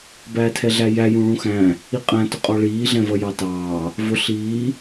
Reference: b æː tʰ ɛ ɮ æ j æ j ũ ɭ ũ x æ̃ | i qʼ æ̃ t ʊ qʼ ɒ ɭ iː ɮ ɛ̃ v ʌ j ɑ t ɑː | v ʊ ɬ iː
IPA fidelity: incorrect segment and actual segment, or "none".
none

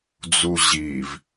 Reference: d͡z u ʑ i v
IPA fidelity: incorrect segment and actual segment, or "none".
none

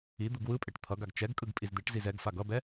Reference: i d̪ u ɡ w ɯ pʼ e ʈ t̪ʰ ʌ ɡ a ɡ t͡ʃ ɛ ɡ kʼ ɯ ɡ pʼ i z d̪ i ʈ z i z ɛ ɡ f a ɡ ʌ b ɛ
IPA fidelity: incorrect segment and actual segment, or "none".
none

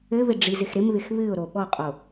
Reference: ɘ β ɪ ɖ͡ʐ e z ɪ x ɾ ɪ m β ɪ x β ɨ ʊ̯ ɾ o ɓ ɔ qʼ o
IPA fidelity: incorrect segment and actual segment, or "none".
e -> i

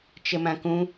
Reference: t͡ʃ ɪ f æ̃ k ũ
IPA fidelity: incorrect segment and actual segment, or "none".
f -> m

